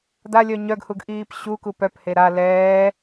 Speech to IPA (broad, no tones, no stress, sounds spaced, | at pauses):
d a lʲ œ ɲ œ ɡ h u ɡ ʔ iː p ɕ u k u p œ p h e ɾ a l ɛː